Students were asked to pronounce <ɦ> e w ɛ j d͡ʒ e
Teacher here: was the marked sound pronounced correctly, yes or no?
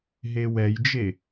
yes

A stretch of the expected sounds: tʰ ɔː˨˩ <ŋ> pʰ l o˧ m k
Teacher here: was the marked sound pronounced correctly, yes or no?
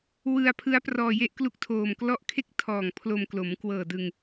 yes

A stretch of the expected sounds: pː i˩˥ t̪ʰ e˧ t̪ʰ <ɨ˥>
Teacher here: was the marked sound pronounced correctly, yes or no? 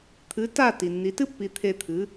no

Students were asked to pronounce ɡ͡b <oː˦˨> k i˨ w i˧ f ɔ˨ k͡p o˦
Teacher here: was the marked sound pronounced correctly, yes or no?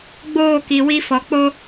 yes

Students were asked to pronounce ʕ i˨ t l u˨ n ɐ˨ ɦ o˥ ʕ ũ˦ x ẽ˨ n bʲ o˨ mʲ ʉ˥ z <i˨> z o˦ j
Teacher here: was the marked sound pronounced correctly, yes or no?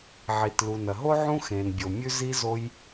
no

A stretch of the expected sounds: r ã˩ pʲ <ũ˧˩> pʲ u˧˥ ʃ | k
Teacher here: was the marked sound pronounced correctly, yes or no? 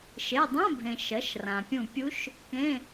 yes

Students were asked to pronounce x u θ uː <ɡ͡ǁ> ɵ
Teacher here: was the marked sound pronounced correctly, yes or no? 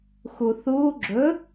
yes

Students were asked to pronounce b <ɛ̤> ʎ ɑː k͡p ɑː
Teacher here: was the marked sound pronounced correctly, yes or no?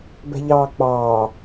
yes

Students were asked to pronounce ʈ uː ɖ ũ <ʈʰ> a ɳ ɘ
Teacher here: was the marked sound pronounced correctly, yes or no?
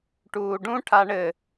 yes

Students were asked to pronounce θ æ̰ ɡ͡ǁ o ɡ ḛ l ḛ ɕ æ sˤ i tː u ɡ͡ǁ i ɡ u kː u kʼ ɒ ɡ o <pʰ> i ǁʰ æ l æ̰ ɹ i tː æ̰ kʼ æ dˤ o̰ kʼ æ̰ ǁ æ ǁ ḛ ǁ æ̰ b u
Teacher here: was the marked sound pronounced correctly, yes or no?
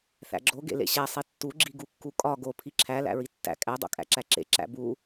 yes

